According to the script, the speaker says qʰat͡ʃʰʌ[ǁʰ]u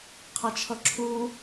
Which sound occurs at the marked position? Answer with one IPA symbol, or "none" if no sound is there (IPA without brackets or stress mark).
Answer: ǁʰ